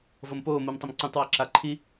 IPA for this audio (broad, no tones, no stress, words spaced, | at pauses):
vɤmpoː mumtˤəmǀũtˤ waǁaǃʰi